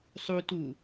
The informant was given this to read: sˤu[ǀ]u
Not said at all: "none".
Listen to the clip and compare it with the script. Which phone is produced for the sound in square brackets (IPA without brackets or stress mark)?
t